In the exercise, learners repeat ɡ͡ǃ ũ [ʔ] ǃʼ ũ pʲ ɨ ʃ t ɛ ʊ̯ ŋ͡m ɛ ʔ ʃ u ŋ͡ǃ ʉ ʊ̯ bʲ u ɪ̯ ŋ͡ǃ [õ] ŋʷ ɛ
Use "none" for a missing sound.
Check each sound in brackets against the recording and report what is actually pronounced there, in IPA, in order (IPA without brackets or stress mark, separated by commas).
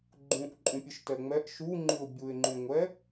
ʔ, ũ